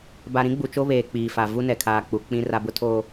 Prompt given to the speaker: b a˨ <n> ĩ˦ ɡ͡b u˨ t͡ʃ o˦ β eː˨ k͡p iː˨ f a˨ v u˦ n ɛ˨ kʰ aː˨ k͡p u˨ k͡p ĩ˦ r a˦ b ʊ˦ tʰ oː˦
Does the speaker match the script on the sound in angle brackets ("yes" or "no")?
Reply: no